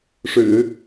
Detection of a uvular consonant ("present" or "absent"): absent